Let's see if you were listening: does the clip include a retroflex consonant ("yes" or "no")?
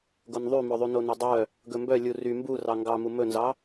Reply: no